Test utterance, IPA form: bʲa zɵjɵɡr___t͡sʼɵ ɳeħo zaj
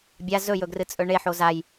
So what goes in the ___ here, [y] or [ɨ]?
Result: ɨ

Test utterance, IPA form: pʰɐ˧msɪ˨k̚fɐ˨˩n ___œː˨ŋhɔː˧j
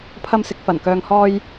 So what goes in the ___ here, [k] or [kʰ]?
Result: k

